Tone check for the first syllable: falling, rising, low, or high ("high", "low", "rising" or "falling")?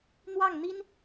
falling